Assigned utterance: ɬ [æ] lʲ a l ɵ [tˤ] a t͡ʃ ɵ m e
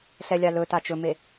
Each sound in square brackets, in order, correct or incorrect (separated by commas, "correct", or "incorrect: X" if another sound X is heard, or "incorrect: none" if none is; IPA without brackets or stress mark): incorrect: ɛ, incorrect: t